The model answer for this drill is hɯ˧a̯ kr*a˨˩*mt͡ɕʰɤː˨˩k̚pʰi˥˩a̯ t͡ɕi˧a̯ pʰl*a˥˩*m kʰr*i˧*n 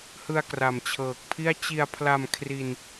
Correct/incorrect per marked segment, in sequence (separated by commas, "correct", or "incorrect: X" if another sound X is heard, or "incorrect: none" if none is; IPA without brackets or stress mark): correct, incorrect: a˧, correct